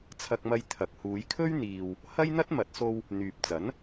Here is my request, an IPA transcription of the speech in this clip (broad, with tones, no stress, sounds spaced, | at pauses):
t͡sʰ ɐ˧ k̚ m ɐ˧ j t̪ʰ ɐ˨ k̚ h uː˨˧ j kʰ ɵ˥ ɥ n̪ iː˨ w | h ɐ˥ j n̪ ɐ˥ t̚ m ɐ˨˥ t̚ s o˧ w | n̪ yː˨ p̚ t͡s ɐ˨˥ n